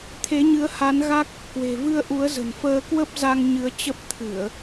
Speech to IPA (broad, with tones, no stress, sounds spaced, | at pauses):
t̪ʰ e˨˦ ɲ ɨ˨˦ ə̯ h a˨˦ n ɣ a˦˥ k̚ | k w e̤˨˩ v ɨ˧ ə̯ ʔ u˨˦ ə̯ z ə̤˨˩ n f əː˧ k w ə˦˥ p̚ z a˧ ŋ ɲ ɨ˨˦ ə̯ t͡ɕ ə˦˥ p̚ t̪ʰ ɨ˧˩˨ ə̯